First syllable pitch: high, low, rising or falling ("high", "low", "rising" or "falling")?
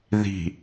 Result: low